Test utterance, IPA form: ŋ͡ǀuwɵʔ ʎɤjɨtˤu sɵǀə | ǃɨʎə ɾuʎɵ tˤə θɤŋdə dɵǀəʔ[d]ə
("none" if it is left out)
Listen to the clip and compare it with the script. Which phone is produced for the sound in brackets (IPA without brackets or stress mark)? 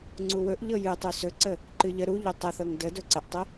tˤ